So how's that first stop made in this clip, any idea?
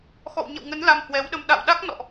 implosive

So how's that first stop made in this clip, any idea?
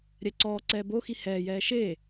click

